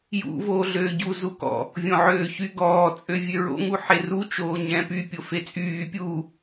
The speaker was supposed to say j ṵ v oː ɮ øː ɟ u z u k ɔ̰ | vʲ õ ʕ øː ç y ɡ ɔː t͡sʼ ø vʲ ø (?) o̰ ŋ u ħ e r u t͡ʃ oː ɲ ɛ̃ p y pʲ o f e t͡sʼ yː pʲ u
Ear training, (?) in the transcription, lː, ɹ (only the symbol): ɹ